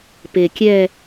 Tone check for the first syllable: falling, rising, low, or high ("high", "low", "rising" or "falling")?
low